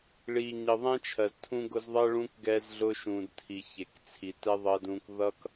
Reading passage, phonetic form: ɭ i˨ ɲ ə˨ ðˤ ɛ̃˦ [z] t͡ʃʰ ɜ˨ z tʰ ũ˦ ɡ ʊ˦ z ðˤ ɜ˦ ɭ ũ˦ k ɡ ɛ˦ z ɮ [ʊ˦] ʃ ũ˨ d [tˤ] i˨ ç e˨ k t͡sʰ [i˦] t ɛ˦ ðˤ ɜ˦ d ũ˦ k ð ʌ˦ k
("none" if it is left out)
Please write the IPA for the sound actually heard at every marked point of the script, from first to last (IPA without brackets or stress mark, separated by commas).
none, ʊ˦, tʰ, i˨